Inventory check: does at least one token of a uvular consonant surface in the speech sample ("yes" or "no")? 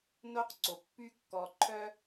yes